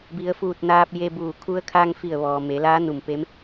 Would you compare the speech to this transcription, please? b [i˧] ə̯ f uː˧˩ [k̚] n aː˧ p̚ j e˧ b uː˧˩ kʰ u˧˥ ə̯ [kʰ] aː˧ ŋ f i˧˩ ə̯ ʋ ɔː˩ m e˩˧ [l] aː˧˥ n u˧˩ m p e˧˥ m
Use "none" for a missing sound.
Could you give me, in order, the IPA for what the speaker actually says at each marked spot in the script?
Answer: i˩˧, t̚, kʰ, l

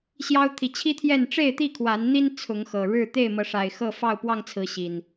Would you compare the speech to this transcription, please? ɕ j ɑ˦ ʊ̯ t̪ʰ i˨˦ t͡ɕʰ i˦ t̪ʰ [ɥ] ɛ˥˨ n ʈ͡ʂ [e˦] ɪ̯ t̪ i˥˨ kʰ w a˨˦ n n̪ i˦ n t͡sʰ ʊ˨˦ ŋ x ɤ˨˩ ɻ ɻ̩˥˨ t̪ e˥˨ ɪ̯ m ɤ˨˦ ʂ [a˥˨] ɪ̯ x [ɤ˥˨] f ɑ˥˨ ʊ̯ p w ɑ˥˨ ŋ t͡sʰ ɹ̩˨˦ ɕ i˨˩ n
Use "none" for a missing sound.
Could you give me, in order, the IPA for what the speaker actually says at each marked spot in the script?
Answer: j, e˥˨, a˨˩, ɤ˥˨

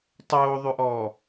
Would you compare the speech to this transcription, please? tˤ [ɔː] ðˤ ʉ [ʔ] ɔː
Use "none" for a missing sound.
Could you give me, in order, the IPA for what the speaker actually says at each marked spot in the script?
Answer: oː, ʔ

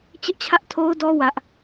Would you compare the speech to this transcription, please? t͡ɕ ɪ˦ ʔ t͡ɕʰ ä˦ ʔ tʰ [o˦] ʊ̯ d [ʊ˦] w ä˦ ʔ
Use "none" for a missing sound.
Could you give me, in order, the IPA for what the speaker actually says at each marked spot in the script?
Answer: o˦, ɔ˦

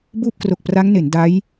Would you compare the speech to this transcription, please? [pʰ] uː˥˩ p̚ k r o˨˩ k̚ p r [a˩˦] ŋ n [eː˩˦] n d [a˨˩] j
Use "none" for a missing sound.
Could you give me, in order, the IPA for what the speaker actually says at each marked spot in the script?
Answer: b, a˦˥, e˩˦, a˦˥

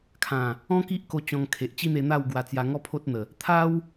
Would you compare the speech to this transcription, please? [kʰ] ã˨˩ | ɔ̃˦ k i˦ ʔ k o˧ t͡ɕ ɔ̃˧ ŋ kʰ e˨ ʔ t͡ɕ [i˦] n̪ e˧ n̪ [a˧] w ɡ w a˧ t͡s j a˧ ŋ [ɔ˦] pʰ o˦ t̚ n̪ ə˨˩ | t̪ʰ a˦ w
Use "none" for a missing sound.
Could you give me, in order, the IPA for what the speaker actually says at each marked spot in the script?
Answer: kʰ, i˦, a˥˧, ɔ˦

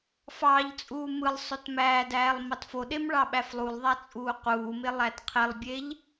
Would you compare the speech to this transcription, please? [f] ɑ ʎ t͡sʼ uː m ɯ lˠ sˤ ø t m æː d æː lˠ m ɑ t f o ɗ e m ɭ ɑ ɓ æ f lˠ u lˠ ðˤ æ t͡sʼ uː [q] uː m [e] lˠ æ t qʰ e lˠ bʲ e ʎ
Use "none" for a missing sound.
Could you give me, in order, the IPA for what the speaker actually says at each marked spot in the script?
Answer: f, q, e

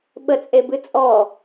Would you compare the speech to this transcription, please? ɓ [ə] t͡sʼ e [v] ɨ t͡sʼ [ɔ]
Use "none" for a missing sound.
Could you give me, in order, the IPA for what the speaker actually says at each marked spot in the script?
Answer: ə, b, ɔ

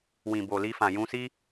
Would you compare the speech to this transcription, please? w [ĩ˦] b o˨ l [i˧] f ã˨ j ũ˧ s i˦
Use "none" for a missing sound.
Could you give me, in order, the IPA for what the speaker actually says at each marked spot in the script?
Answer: ĩ˨, i˧

